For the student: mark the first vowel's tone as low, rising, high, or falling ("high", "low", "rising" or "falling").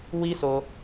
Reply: high